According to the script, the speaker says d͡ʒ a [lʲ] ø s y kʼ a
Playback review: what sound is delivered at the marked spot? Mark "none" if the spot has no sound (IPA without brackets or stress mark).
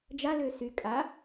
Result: l